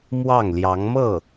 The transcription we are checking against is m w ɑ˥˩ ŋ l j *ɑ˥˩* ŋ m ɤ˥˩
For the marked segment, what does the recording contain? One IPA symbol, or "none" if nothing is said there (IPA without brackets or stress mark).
ɑ˧˥